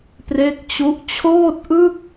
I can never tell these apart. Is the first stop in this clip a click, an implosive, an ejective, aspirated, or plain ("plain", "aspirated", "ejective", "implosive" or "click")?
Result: plain